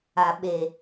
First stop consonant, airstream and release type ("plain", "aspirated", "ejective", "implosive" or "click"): implosive